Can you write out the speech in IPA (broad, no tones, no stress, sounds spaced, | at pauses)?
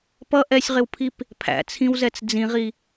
p ʌ ʔ ɛ sʲ ʁ ɪ w pʰ i p | pʰ æ̰ t͡sʰ ĩ w z ɛ t͡s d͡z ĩ ʁ i